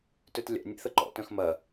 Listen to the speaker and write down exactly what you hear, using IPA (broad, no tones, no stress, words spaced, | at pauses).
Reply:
tøtlʲa̰ nʲḛθəǃɔ̰ tœ̃xmɐ